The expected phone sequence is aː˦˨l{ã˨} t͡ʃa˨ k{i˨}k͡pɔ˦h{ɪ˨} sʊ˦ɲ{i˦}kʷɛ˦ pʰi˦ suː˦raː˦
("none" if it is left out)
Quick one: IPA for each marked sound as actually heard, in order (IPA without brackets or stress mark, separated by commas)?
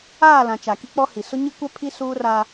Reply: ã˨, i˦, i˨, i˦